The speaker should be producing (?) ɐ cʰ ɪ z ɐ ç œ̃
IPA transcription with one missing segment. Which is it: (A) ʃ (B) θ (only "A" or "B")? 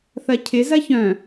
B